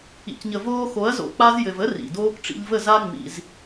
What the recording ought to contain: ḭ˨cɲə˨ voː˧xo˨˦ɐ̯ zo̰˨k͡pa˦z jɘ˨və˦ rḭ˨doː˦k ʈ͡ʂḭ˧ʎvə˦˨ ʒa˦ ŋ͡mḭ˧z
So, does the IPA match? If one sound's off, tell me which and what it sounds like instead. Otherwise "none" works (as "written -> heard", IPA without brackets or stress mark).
ʒ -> z